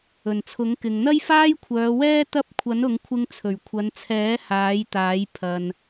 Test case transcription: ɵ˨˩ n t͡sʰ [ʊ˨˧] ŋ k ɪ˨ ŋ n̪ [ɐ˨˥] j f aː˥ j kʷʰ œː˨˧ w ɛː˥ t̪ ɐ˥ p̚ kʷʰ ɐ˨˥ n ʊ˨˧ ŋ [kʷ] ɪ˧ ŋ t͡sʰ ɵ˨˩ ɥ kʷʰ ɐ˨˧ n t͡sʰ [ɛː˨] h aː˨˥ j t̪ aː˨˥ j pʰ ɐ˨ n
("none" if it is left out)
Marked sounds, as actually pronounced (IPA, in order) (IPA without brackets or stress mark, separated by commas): ʊ˨˥, ɐ˥, kʷʰ, ɛː˨˥